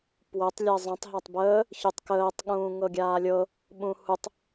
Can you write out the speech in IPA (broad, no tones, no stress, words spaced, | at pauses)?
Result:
pwətˤ lʲɜzˤə̃tˤ ɦatˤbəː | çʉtˤkəːtˤ ɠũːŋɤɡʲaːlʲɤ | ɓũhutˤ